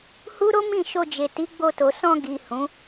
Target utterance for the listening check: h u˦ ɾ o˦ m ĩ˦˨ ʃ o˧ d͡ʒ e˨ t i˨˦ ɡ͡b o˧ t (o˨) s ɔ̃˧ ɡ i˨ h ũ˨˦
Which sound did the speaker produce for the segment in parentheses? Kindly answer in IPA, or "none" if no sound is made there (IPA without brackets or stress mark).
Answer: o˨